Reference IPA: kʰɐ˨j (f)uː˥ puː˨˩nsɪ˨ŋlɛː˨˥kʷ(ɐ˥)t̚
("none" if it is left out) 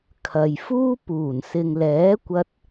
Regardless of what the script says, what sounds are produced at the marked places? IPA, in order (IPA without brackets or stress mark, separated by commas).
f, ɐ˧